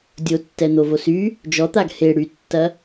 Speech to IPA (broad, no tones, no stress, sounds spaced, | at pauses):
dʲ o tː ɛ n̪ o v o s y | d͡ʒ ɔ t̪ a ɡ h e ɽ y tː ɐ